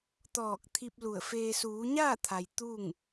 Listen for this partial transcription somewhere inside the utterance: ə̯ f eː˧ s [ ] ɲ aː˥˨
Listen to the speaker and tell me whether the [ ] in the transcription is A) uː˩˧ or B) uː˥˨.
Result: A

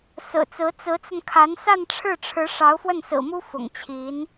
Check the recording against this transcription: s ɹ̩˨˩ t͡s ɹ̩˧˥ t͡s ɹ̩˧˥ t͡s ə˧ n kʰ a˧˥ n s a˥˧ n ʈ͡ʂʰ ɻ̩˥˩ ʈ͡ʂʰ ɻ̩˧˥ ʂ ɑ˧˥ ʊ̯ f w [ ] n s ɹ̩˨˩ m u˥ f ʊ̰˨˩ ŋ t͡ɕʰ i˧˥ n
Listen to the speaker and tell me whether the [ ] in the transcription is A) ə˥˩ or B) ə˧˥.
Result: A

